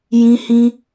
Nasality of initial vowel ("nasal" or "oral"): nasal